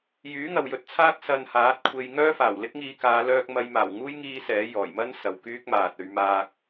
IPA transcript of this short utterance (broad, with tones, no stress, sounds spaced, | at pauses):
j yː˨˥ ŋ ɐ˨ w j ɵ˨˥ t̚ t͡sʰ aː˥ k̚ s ɐ˧ n h aː˨˥ t̚ kʷʰ e˧ j ŋ œː˥ f aː˨˩ w l ɪ˥ k̚ ŋ iː˧ k aː˨˧ l œː˧ k̚ m ɐ˨˧ j m aː˨˩ w ŋ uː˥ j ŋ iː˥ s ɛː˨˥ j ɔː˨˩ j m ɐ˥ n s ɐ˨ w k yː˥ k̚ m aː˨ t̚ ɵ˧ ɥ m aː˧ k̚